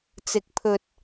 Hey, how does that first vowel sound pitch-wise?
rising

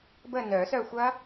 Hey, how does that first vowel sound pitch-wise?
falling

